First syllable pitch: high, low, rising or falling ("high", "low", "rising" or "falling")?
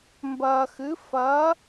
low